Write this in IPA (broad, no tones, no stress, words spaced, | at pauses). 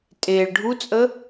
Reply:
tʼeɭ ɖʱut͡sʼə